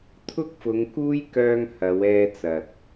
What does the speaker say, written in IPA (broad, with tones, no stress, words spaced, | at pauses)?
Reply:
t̪ʰʊ˥k̚fʊ˨˧ŋkuː˥jkœː˧ŋ hɐ˨˧wɛː˧ t͡sɐ˨t̚